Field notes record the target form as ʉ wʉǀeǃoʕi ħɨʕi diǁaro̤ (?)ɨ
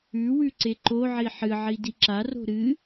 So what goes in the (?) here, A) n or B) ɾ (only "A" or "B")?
B